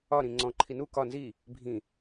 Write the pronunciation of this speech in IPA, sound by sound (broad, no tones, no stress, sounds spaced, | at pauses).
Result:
ɒ ɾ ĩ ŋ͡ǀ ɔ̃ ǃʰ i n u k ɒ n z i | bʱ ĩ